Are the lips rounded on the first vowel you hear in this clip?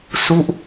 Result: yes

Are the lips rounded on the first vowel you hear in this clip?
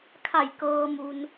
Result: no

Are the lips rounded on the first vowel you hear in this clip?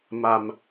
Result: no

